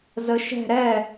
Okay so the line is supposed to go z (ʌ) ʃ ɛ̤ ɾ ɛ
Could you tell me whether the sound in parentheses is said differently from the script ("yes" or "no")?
yes